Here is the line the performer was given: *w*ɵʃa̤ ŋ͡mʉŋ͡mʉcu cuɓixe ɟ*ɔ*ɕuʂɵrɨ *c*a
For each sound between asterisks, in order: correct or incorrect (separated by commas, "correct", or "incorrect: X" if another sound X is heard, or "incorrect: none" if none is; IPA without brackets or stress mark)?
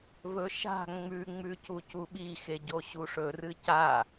incorrect: v, incorrect: o, correct